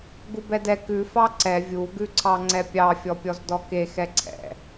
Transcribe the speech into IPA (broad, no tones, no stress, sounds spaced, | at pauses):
ɡ u b ɛ d ɛ k ʉ f ɑ ǀ ɛ vʲ u ɡ ʉ ǀʰ ɑ ŋ͡ǀ ɛ pʲ ɑ fʲ ɔ pʲ ɔ z d ɔ k e x ɛ ǀʰ ɛ̰